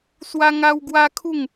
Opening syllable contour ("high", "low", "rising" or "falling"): high